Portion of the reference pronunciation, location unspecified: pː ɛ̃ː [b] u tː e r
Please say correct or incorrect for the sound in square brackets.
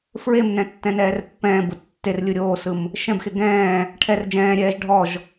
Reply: correct